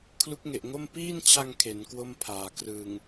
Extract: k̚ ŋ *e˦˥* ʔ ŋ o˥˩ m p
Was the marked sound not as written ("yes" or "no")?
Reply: yes